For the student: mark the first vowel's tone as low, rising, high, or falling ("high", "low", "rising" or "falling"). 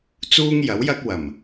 high